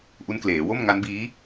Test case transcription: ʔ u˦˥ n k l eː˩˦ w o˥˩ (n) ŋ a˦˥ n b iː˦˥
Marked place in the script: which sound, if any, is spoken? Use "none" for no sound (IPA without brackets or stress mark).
m